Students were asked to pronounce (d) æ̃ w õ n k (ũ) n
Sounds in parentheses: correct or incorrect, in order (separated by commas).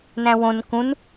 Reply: incorrect, correct